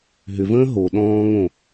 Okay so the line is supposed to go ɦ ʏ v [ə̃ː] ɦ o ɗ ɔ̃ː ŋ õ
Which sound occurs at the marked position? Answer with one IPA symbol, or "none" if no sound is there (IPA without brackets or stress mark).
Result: ə̃ː